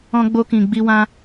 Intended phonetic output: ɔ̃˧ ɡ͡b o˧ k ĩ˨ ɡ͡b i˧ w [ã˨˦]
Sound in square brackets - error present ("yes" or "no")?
yes